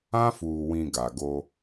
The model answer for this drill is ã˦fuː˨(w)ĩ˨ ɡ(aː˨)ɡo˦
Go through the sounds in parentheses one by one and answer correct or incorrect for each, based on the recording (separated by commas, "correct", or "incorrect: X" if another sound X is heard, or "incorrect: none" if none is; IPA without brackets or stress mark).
correct, incorrect: a˨